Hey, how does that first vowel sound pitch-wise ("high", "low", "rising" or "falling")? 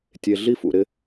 low